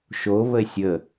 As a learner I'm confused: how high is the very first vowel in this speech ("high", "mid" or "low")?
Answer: mid